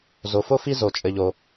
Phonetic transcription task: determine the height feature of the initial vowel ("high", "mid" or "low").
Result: mid